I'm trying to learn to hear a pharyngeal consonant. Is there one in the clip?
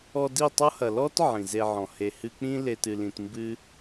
yes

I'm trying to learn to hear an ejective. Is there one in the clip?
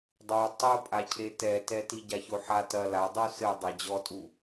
yes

